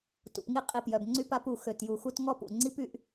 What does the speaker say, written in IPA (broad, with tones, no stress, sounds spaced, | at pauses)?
t ṵ˩ p ŋ i˦ qʼ i˨ p j œ˩ b ŋ͡ǀ y˦ p a˦ p u˨ x ø˨ t j u˨ x u˦ t ŋ ɔ˥ p ṵ˩ ŋ͡ǀ i˥ p y˦ ʔ